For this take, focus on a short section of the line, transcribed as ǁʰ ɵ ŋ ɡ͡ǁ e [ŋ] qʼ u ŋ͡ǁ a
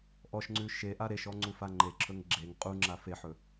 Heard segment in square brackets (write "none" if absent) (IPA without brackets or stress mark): ŋ